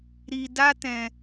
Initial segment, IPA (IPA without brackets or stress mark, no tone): ɾ